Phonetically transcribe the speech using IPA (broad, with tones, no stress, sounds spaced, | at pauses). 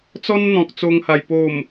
t͡s ɔ˦ n n̪ ɔ̃˨ k̚ t͡s o˧ ŋ h a˨˩ j p o˨˩ m